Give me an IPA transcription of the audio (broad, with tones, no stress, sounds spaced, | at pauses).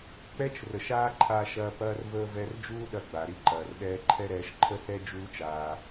k͡p ɛ˦ t͡ʃ r ə˨ ʃ aː˦ ǃʰ aː˧ ʃ ɐː˧ p ɐː˦ r v əː˦ v ɛ˧ r d͡ʒ uː˦ ɗ ɐ˧ ɡ͡b a˨ ɾ i˧ ǃ ɐː˨ r ɗ ɛː˧ ǃʰ ɛ˦ ɾ ɛː˧ ʃ ǃʰ ə˦ s ɛ˦ d͡ʒ uː˦ t͡ʃ aː˧